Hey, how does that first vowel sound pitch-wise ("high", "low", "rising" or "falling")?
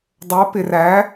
rising